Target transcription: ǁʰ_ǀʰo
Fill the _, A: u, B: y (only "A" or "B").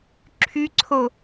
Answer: B